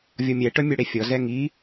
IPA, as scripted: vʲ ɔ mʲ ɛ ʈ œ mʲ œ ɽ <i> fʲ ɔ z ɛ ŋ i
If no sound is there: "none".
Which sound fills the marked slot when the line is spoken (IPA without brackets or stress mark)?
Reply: e